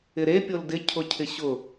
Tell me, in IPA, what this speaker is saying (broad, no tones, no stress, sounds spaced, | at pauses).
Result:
ɪ ɾ e pʲ o l d ɪ cʰ ʊ cʰ ɪ ɕ ʊ